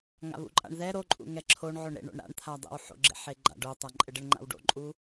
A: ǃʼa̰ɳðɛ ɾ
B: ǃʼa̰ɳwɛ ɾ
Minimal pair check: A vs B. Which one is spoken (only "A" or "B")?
A